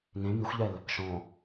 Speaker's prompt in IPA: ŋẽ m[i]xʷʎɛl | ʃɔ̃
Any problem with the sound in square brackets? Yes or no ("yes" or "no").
no